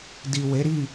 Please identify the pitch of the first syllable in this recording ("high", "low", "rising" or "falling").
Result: low